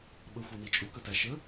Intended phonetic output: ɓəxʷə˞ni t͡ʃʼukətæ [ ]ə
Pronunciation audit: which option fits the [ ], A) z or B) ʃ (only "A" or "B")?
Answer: B